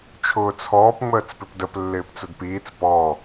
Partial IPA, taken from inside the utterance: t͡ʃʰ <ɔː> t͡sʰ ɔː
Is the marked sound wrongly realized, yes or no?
yes